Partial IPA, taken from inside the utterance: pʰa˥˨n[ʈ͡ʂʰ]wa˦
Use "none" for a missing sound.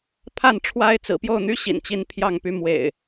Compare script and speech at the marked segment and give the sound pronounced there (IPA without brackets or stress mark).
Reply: ʈ͡ʂʰ